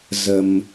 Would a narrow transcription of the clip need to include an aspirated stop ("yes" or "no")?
no